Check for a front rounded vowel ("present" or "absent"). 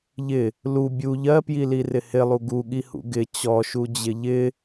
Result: absent